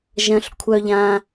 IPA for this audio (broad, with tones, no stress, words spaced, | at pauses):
ʒɐ̃˧ɬ kʷʰœ˧ʎã˧